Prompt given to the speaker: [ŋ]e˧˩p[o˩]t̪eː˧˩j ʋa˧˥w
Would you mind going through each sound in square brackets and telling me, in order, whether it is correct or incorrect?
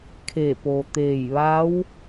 incorrect: kʰ, correct

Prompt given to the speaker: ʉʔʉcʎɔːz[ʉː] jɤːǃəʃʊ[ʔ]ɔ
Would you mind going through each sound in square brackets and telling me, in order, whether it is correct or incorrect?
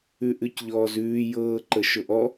correct, correct

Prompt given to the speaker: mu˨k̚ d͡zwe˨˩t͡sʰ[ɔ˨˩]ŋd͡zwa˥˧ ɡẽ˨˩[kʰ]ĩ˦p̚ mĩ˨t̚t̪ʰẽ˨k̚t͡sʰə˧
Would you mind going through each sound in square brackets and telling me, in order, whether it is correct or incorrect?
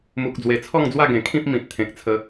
incorrect: ɔ˥˧, correct

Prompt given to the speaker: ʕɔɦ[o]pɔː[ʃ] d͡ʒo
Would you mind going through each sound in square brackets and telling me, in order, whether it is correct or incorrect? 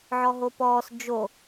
correct, incorrect: s

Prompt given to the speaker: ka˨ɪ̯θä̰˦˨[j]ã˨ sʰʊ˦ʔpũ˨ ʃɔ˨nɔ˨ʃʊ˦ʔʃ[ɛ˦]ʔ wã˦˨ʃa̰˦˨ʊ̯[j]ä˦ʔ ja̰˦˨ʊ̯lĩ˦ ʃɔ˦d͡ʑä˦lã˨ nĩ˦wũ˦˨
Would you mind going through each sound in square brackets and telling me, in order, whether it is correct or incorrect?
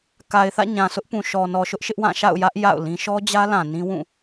incorrect: ɲ, incorrect: ɪ˦, correct

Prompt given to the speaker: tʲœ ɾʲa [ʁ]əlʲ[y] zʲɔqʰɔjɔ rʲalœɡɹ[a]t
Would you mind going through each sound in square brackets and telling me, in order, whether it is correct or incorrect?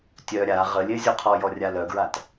correct, incorrect: e, correct

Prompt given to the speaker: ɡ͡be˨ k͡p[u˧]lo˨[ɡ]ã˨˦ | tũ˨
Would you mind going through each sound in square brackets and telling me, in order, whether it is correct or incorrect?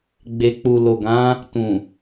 incorrect: u˨, correct

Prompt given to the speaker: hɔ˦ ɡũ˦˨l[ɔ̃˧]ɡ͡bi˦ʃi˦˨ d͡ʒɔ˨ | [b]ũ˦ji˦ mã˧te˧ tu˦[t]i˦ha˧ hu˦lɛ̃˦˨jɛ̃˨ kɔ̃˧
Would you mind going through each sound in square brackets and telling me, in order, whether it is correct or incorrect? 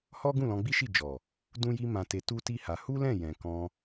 correct, incorrect: d, correct

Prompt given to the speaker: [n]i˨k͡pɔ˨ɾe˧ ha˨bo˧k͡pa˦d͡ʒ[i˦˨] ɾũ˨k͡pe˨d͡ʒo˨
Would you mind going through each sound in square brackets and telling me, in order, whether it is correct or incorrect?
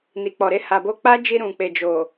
correct, incorrect: i˧

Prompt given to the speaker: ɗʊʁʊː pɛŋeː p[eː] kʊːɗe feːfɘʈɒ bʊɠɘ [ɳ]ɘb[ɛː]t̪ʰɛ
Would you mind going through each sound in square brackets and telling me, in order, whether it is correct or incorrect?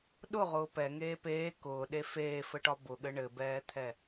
correct, correct, correct

